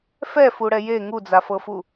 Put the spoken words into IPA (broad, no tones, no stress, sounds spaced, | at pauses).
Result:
f ɛ f u ɽ ɛ j e ŋ u d͡z a f ɤ f u